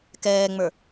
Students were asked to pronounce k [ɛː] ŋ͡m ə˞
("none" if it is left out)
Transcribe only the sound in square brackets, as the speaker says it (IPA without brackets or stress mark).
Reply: ɛː